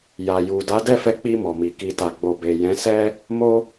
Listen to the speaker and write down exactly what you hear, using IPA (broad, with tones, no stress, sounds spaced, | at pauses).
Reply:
j a˨ j u˨ d a˨˦ d ɛ˦˨ f ɛ˧ k͡p i˧ m ɔ˨ m i˨ k i˨ t a˨ ɡ͡b o˨ b e˨ j ɛ̃˨˦ s ɛ˦ | m o˧